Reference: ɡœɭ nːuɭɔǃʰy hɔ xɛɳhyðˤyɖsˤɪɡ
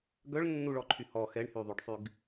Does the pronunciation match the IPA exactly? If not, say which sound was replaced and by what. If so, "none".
ɪ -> y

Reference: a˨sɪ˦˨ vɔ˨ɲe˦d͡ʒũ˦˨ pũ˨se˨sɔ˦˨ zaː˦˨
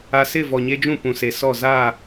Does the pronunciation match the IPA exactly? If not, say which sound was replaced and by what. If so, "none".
none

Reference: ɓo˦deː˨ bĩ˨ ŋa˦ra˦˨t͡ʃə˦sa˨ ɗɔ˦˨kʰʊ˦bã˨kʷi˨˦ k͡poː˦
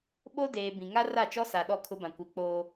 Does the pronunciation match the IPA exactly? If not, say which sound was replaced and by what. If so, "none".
ə˦ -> ɔ˦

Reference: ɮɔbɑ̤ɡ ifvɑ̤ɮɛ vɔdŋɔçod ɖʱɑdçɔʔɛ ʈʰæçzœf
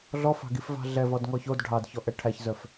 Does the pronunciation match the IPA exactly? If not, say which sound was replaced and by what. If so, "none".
b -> f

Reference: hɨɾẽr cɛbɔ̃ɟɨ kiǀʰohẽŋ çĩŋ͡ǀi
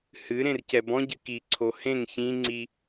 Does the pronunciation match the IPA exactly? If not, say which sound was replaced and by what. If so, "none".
none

